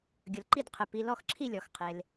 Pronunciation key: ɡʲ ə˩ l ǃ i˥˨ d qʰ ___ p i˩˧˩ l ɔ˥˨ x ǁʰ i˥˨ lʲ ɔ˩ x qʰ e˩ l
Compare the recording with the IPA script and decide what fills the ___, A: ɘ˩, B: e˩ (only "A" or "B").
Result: A